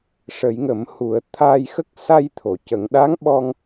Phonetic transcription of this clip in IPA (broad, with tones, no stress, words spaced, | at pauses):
ʂə˨˩˨jŋə˨˩˨m hu˨˩˨ə̯ t̪ʰa˧jxə˦˥k̚ sa˧jt̪ʰo˨˩˨ cə˨˩˨ŋɗa˧˥ŋɓɔ˧ŋ